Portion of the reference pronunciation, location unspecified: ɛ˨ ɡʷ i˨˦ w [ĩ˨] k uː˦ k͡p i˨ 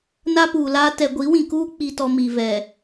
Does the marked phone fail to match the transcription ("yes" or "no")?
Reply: no